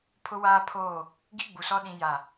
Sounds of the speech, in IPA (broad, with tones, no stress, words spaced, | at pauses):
pʰʊ˦waː˦pʰoː˦˨ | ɡi˦ɡ͡bu˨sɔ˦ ɗĩ˦ja˦˨